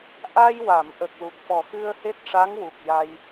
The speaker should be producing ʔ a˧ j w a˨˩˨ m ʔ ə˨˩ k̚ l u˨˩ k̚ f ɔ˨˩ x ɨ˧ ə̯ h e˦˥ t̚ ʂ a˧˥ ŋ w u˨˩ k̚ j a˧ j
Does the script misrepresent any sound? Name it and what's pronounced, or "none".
none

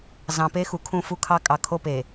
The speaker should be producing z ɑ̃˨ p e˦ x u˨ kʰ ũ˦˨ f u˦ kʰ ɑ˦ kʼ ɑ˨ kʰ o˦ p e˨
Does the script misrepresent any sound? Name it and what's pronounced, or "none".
none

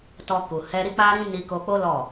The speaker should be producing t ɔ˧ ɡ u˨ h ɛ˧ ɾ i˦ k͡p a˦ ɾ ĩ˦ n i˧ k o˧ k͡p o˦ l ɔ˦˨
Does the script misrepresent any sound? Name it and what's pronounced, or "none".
ɡ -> k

